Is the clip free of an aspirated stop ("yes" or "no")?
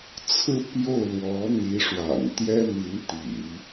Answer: no